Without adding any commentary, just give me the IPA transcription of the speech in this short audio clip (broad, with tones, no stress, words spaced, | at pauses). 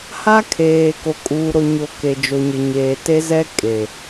ha˦kʰeː˨ ko˨kʼuː˨ɾo˨ɲo˨ ke˨d͡ʒo˨ɲɪ˨ ɲeː˨ te˦zɛ˦ kʼe˨